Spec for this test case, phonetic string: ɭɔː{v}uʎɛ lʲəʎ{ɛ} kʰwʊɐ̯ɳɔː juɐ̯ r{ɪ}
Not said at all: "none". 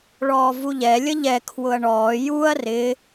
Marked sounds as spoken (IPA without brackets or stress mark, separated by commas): v, ɛ, ɪ